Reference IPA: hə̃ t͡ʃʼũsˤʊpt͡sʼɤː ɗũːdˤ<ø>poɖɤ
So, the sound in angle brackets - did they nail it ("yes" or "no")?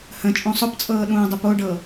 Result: no